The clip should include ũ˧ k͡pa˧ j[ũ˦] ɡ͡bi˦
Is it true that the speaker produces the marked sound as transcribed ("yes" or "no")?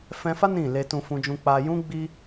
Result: yes